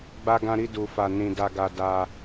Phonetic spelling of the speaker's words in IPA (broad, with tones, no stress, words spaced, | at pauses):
ɡ͡ba˧ɡã˧ ɾi˧du˨fa˨ nĩ˨da˨ɡa˨ da˧